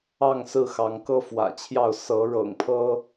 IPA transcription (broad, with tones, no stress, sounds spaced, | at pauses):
ɑ˥˨ ŋ s ɹ̩˥˨ x ɑ˨˦ ŋ k ɤ˦ f w ä̰˨˩ t͡ɕʰ j ɑ˥˨ ʊ̯ s ɤ˨˦ ɻ ɤ̰˨˩ ŋ pʰ ɤ˦